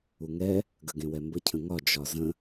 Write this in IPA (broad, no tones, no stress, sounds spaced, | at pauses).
u ŋ ɛ | ɡ ə ɡ ẽ w ɛ m b ə cʰ ə̃ ŋ ɒ d͡ʒ ɒ z ə̃